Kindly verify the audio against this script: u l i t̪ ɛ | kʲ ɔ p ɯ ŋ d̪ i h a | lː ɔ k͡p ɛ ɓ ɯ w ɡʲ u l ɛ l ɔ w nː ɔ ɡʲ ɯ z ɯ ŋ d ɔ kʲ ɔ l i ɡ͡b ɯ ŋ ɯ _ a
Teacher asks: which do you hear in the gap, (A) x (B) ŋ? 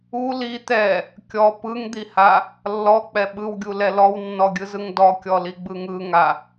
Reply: B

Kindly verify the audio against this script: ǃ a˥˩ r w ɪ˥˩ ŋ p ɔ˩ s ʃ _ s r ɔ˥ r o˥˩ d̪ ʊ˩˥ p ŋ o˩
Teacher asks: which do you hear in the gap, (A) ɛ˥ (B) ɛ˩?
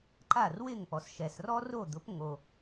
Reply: B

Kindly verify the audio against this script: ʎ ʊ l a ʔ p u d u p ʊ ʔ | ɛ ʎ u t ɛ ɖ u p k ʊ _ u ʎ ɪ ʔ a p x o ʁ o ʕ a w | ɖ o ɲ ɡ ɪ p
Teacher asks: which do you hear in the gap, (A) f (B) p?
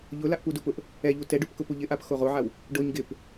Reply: B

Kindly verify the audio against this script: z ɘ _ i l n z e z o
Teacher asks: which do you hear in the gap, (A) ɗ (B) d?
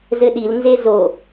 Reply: A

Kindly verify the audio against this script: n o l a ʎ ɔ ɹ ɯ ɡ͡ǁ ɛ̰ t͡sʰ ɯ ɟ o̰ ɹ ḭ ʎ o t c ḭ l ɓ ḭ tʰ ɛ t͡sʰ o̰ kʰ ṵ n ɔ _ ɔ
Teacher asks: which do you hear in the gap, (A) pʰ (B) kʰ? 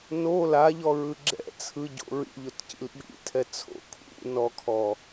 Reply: B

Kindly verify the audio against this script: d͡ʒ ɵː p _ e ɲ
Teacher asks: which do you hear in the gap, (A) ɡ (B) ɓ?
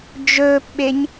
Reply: B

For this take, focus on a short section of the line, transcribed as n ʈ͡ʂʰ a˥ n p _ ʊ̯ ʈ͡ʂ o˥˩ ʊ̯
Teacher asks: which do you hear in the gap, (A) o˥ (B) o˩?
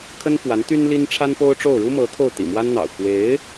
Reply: A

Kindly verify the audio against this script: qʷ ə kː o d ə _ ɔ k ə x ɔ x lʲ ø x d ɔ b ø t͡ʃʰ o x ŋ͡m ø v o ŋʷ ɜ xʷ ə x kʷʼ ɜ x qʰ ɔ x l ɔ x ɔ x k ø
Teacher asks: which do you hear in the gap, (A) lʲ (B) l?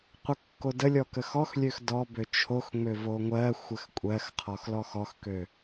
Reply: A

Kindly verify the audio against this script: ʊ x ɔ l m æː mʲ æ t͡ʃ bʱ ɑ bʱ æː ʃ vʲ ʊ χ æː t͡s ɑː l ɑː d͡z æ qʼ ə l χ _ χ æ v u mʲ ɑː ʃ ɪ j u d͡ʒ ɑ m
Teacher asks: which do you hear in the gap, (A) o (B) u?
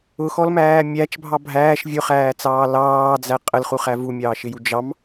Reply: B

